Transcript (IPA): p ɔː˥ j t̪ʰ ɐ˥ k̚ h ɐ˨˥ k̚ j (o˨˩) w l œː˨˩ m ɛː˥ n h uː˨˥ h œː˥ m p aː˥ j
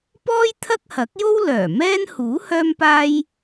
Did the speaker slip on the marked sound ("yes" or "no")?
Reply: yes